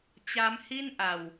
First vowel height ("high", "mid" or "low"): low